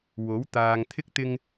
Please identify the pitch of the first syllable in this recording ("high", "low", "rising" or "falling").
rising